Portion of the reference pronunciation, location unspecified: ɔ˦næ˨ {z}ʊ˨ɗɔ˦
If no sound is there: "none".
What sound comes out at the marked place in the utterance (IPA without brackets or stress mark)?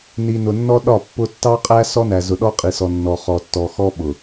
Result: z